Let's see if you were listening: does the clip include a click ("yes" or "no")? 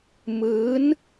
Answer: no